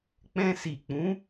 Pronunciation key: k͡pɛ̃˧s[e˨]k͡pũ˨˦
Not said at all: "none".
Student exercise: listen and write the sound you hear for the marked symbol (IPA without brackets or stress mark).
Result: i˨